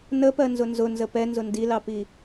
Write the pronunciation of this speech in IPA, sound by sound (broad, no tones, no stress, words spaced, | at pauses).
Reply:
nəpɜnzʊ nzʊnzə pɛnzʊ ndilɑpi